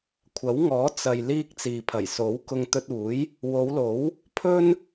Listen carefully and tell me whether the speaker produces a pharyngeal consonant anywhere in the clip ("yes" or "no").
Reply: no